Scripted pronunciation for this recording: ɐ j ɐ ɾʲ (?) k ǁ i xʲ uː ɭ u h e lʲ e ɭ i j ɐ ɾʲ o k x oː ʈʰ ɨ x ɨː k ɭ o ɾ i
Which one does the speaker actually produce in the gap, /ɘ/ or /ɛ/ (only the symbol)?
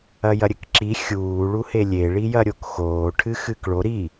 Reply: ɘ